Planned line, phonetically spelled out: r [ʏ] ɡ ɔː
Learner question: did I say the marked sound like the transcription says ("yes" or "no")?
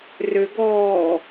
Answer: yes